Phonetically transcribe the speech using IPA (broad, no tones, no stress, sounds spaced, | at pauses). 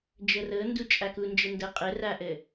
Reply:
d͡ʒ ɤ r ɤ n d u t͡ʃʼ a k u n d͡ʒ ə n d ɤ qʼ ə r a ʔ ə